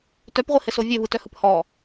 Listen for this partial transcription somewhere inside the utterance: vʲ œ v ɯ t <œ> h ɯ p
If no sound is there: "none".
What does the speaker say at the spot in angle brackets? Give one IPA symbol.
œ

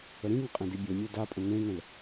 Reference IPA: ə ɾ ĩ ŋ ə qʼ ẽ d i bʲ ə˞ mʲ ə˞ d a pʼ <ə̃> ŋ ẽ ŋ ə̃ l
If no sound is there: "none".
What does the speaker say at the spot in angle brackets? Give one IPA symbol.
ə̃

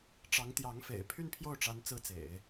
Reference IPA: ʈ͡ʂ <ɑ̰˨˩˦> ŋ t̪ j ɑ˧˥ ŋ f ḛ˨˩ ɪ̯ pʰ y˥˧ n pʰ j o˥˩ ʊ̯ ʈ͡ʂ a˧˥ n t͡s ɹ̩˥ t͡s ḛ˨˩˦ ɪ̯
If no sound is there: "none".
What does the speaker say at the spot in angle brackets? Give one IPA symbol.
ɑ˧˥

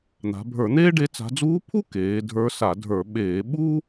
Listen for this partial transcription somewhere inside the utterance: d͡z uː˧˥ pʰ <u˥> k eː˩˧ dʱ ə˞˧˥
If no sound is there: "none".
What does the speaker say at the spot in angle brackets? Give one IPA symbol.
u˥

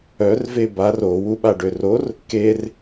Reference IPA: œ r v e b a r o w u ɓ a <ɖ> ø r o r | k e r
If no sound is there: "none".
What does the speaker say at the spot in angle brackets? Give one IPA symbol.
ɖ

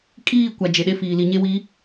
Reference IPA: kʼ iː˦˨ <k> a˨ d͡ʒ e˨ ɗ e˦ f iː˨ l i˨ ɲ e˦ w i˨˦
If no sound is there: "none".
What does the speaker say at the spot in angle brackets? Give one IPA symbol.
kʷ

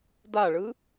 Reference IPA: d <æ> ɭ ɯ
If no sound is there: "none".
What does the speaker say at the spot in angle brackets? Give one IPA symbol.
a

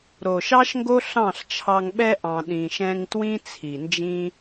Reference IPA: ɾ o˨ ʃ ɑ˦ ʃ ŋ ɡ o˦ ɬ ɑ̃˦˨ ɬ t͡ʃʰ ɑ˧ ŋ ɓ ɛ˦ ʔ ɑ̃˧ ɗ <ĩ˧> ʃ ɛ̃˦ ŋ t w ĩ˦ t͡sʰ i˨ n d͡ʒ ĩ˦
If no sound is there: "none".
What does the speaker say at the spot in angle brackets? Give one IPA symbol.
ĩ˧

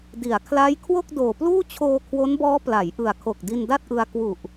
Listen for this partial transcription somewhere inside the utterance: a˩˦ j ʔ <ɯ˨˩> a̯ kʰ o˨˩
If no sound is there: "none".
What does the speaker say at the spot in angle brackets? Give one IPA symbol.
ɯ˨˩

